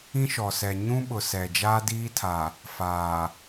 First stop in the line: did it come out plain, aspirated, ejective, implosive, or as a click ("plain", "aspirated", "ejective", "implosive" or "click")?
implosive